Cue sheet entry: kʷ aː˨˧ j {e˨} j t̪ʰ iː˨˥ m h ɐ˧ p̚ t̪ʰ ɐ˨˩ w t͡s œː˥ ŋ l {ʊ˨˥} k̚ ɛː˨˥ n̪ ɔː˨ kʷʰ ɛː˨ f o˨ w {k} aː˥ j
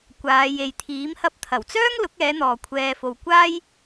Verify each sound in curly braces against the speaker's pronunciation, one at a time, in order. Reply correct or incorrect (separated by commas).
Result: correct, correct, incorrect